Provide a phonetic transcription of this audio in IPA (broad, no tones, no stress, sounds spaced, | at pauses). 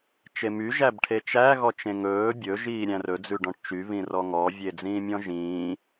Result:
t͡ʃ e m y ʒ æ b ʈʰ e t͡ʃ æ ɣ ɔ t͡ʃ ẽ ŋ ɵː bʲ ɵ ʒ iː ɾʲ æ̃ r ɵ d͡z ʉ ɖ ɔ̃ ʈ t͡ʃ y β ĩ r ɔ ŋ ɔ vʲ e d͡z ĩː mʲ ɔ̃ ʒ ĩː